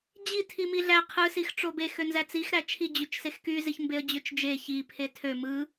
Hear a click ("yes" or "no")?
no